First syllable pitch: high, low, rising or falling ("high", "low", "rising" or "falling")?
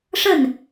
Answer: falling